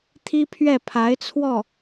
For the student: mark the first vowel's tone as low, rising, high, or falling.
high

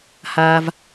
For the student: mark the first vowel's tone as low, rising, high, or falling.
high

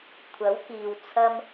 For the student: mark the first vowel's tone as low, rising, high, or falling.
rising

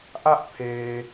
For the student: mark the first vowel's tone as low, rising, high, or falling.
high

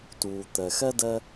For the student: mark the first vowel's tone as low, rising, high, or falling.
low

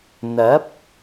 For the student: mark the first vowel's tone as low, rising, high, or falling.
rising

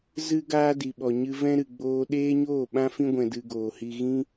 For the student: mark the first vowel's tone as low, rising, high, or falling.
high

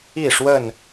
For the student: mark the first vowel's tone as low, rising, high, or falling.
falling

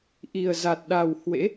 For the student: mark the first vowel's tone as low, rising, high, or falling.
low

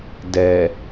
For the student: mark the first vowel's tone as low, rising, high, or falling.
low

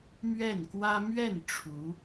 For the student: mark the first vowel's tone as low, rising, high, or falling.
falling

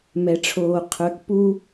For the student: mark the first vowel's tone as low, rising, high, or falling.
low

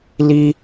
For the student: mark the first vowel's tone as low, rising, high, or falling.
high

